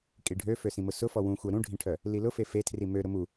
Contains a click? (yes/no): no